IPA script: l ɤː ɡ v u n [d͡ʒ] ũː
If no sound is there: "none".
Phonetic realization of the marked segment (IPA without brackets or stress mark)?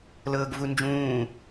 d͡ʒ